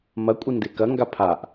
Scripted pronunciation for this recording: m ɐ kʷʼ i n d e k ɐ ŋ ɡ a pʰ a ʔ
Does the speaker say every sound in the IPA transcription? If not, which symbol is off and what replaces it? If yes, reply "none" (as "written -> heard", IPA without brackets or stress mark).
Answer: none